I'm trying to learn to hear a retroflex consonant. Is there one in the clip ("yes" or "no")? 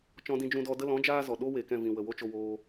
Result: no